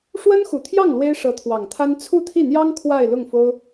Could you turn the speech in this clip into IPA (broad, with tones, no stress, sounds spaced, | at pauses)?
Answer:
ʂ w ə˥ n x u˨˩ t̪ʰ j ɑ˥˩ ŋ l w e˥ ɪ̯ ʂ ɤ˧˥ t̪ʰ w ɑ˨˩ ŋ t̪ʰ a˥ n t͡sʰ u˥˧ t̪ʰ i˥˩ n̪ j ɑ˥ ŋ kʰ w a˥˧ ɪ̯ l ʊ˥˩ ŋ f o˥ ʊ̯